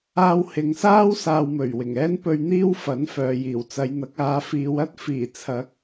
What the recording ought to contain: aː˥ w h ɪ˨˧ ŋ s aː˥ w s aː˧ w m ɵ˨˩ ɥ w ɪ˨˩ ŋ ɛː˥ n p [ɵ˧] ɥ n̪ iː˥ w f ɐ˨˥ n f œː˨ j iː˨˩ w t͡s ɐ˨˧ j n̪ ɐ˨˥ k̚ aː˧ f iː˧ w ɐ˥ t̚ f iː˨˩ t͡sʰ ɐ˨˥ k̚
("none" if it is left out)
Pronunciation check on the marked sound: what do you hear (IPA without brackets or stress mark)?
ɵ˧